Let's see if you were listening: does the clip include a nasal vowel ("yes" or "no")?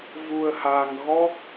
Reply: no